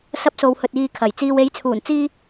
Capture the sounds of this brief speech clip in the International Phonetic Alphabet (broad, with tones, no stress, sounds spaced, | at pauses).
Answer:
s ɐ˧ p̚ s o˨ w h ɵ˨ t̚ iː˨ kʰ ɐ˨˩ j t͡s iː˨ w e˨˥ j t͡sʰ uː˨˩ n t͡s iː˧